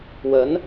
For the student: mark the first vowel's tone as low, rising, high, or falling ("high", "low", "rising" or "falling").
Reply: rising